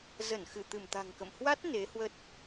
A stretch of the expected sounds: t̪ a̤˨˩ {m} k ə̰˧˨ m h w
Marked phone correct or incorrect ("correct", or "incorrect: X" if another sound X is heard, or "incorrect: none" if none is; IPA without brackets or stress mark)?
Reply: incorrect: ŋ